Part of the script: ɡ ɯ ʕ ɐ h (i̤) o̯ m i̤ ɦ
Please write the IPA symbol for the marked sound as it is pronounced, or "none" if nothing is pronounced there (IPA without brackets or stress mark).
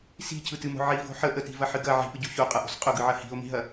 i̤